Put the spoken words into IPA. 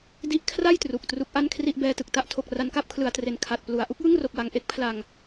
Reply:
d i˦˥ ʔ kʰ r a˥˩ j t r u˨˩ k̚ t r u˦˥ k̚ ʔ a˥˩ n kʰ r i˥˩ ʔ b ɛː˧ t ɯ˨˩ k̚ t a˦˥ ʔ tʰ o˨˩ k̚ r a˧ n k a˥˩ p̚ kʰ l ɯ˩˦ a̯ t r e˨˩ n kʰ a˨˩ t̚ p l u˩˦ a̯ ʔ u˦˥ k̚ j ɯ˥˩ ŋ r o˨˩ k̚ w a˨˩ ŋ ʔ e˦˥ k̚ pʰ l a˧ ŋ

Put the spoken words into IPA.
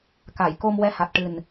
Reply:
k a˨˩˨ j k o˧ m w ɛ˧ h a˨˩ t̚ ʈ ɨ˨˩ n

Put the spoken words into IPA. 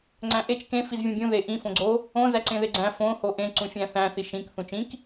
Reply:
ŋ͡ǀ æ̃ ʔ e t͡ʃ k ẽ f i z vʲ õ bʲ ũ ð e ʔ ĩ f õ ɡ͡ǀ o | õ z æ ǀ ẽ ð e ɡ͡ǀ æ̃ f õ h o ʔ ẽ ǀ ũ fʲ æ̃ θ æ̃ θ i ʃ ĩ k θ ũ t͡ʃ ĩ k

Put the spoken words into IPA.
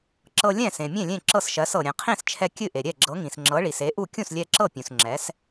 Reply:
ǁ ɤ˧ lʲ ɛ̃˥˩ s ẽ˩ mʲ ẽ˥˩ lʲ ẽ˥˩ ǁ ɤ˥˩ s ʃ ɜ˩˥ s ɤ˩ ɾʲ ɛ̃˩ qʰ ĩ˥˩ s t͡ʃʰ ɛ˧ kʲ ɨ˥˩ ʔ e˩ ɾʲ ɛ˥˩ ɡ͡ǁ ɤ˩˥ ŋ ĩ˩ s ŋ͡ǁ ɤ˩˥ ɭ i˩ s e˩˥ ʔ u˥˩ kʲ ũ˥˩ s lʲ ɛ˧ ǁ ɤ˥˩ pʲ ũ˩ s ŋ͡ǁ ɛ˩˥ s

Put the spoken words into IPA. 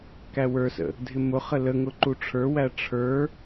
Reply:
k æ w ə˞ s ə̰ | dʱ ɪ m ʊ χ ə l ə ŋ ʊ ǃ u ʈ͡ʂʰ ə˞ w æ ʈ͡ʂʰ ə˞

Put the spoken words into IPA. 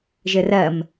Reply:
ʒ ɘ r ɜ m

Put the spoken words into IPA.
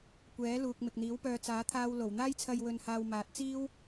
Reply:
kʷ ɛː˨˥ l uː˨ k̚ m ɪ˨ k̚ n̪ iː˨˥ w p œː˧ t͡s aː˨˥ t̪ʰ aː˧ w l o˨˩ w n̪ aː˥ j t͡sʰ ɐ˧ j w ɵ˧ n h aː˧ w m aː˨˥ t̚ t͡s iː˥ w

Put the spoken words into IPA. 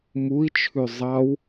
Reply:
m u i̯ t͡ʃʰ ʉ zˤ ɑ w

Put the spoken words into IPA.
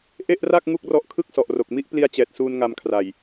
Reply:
ʔ e˥˩ ʔ r a˥˩ k̚ ŋ u˥˩ k̚ r ɔ˦˥ ʔ kʰ ɯ˥˩ k̚ s ɔ˨˩ ʔ r o˨˩ k̚ m i˥˩ ʔ p l i˧ a̯ t͡ɕ ɛː˨˩ t̚ s uː˧ n ŋ a˧ m kʰ r a˨˩ j

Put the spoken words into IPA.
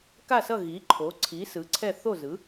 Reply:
k a˥˨ s ʌ˥˨ ɣ i˩˥ ǃʰ o˩˥ ǀʰ i˩˥ s ɯ˩˥ ǀʰ ɛ˥˨ θ o˥˨ z ɯ˩˥

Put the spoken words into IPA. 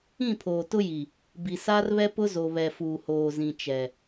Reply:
ĩ˦˨ pʰ oː˨ t ʊ˦ j i˨ | b i˨ s aː˦ r β ɛ˦ p ʊ˦ z o˨ β ɛ˨ f uː˨ h oː˨ z ĩ˨ t͡ʃ ɛ˨

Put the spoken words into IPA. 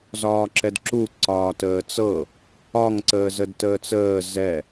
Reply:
z ɒː ǁ ɛ d ǁ u ǀ ɒː t əː t͡s ɤ | ɒ ŋ ǀ əː z ə d t əː t͡s əː z ɛ

